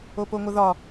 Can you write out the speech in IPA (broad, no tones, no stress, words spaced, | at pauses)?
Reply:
opoŋʷəðɒ